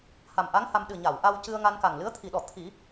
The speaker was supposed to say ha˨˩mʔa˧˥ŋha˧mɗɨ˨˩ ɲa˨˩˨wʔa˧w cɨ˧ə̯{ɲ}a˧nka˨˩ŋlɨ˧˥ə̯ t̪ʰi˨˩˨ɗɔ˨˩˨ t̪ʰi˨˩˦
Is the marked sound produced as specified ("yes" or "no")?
no